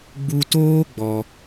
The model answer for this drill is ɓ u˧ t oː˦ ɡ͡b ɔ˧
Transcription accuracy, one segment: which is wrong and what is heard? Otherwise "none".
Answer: ɓ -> ɡ͡b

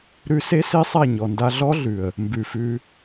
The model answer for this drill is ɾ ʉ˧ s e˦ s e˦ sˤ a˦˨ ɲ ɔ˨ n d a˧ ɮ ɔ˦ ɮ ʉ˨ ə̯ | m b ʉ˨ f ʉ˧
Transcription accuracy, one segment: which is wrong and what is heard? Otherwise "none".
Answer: none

